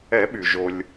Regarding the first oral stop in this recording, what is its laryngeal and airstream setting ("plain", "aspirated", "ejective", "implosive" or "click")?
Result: implosive